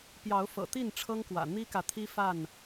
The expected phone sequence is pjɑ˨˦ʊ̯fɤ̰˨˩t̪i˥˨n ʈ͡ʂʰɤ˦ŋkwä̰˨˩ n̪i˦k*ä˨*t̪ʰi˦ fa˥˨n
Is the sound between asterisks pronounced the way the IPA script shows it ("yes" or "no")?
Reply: yes